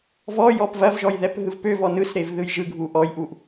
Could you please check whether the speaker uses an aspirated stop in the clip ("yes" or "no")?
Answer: no